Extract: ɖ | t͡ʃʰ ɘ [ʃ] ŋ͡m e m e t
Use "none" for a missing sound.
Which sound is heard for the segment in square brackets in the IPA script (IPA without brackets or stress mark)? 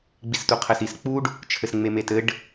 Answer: s